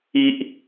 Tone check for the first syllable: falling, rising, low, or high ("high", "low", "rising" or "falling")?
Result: low